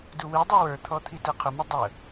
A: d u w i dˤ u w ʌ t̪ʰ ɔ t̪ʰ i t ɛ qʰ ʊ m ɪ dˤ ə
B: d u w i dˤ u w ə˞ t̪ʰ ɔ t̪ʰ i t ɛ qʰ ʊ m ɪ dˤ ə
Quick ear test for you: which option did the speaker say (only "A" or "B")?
B